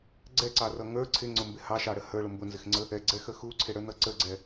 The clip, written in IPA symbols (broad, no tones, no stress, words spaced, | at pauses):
ɡ͡ǀɛǀɑrʌ ŋə˞ ǀʰɪŋ͡ǀʊmbɪ hɑʃɑɽə hə˞ɭʊ mbʊnzɪxŋ͡ǀə | ɛɡ͡ǀɛxə xuǀʰɪɽə˞nʌ ǀəɡ͡ǀɛ